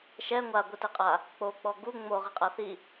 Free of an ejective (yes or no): no